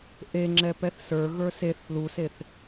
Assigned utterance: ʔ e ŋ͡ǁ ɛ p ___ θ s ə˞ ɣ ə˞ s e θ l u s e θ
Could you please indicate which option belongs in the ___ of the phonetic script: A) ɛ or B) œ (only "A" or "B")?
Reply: A